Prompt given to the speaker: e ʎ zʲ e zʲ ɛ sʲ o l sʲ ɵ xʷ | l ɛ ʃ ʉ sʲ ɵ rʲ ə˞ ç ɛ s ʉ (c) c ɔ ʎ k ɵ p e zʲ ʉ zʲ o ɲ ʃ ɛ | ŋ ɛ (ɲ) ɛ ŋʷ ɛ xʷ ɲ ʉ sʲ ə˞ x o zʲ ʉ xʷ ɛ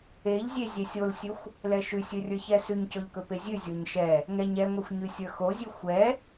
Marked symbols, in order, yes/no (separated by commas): no, yes